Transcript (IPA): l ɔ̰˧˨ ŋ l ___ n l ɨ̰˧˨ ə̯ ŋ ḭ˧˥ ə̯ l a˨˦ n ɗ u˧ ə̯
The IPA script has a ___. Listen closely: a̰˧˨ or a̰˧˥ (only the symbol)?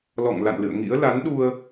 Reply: a̰˧˨